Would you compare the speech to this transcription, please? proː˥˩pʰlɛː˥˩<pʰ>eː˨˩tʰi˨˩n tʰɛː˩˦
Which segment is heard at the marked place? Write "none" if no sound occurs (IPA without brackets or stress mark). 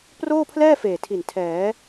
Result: f